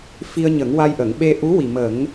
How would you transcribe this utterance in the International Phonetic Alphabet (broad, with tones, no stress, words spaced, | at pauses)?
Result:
fi˧ə̯ɲə˨˩˦ŋwa˧jʔə˨˩˨ŋ ɓe˧ ʔu˧˥wi˨˩mə˨˩˦ŋ